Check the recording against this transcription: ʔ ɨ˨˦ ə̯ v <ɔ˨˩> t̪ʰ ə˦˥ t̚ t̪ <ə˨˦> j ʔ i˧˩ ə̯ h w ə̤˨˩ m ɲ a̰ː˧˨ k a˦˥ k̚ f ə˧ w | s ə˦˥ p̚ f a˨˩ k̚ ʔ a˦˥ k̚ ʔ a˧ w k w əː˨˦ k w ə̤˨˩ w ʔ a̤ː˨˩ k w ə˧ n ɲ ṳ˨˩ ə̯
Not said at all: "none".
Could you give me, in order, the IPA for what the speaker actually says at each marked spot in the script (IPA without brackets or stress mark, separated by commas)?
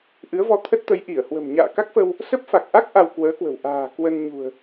ɔ˧, ə˨˦